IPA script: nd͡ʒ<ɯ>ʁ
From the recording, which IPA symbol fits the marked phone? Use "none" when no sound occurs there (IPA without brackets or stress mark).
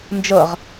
ɤ